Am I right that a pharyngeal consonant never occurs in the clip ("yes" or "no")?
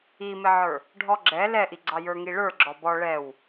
no